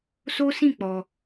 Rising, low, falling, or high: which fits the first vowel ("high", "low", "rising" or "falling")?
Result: high